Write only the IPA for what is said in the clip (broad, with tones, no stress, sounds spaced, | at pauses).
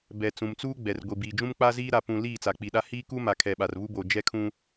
b ɛ˨ t͡s ũ˨ m t͡s uː˦ ɡ͡b ɛ˨ r ɡʷ i˨ b iː˨ d͡ʒ ũ˦ m k͡p a˦ z iː˦ ɾ a˨ p ũ˨ l iː˦˨ t͡s a˨ k͡p i˨ ɗ a˦ h iː˦ k u˦ m a˨ kʰ ɛ˨ ɓ a˨ r β u˦ b oː˨ d͡ʒ ɛ˦ kʰ ũ˦